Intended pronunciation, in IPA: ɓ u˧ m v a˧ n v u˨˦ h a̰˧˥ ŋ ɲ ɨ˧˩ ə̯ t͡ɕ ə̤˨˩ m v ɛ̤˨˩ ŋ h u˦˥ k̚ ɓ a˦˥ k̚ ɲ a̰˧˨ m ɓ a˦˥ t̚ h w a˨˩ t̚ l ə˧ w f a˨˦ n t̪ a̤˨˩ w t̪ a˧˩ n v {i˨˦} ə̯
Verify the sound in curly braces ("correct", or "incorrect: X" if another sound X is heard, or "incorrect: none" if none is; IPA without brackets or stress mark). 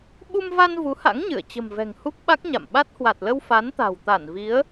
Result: correct